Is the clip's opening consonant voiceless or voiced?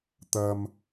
voiceless